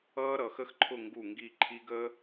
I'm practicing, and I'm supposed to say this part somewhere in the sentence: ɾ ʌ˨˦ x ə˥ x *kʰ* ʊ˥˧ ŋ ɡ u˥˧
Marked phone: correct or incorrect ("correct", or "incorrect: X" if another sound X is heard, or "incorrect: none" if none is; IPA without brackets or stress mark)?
incorrect: ǃʰ